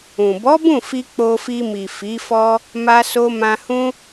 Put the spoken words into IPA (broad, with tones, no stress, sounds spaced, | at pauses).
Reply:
ũ˨ b ɔ˨˦ b ũ˦˨ f i˧ k͡p o˧ f i˧ m i˨ f i˨˦ f ɔ˦ | m a˧ s o˧ m ã˧ h ũ˦